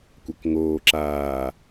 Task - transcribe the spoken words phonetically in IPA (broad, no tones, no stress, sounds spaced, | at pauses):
kʷ a k ŋ oː ǁ aː